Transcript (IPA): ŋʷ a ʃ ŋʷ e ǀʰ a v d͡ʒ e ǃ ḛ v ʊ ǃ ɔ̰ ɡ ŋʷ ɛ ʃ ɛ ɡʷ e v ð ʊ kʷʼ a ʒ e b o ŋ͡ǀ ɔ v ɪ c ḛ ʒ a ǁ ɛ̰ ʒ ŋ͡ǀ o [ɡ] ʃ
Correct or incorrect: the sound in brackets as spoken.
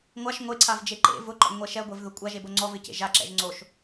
incorrect: none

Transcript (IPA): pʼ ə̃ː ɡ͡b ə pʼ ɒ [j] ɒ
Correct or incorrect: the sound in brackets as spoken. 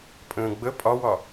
incorrect: w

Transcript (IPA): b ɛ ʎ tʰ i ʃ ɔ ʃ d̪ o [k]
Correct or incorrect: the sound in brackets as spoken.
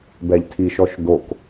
correct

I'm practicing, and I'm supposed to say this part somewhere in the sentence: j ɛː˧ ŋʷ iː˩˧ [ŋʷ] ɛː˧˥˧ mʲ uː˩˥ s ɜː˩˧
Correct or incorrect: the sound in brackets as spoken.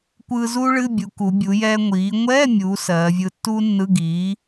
correct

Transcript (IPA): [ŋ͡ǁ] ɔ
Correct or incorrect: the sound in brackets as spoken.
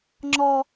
correct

